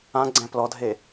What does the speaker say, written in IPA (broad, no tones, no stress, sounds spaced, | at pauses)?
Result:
ã ɡ͡ǀ ɛ̃ p l ɔ dʱ e